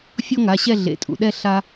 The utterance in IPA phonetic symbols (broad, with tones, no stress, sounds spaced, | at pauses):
fʲ ɔ˦ ŋ a˩˧˩ ɕ ɛ˦˨ ɮ ḛ˩˧ tʼ ṵ˩ ɗ ɛ˦˨ ɬ a˦